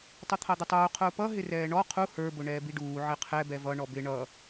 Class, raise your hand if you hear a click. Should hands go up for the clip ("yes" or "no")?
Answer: no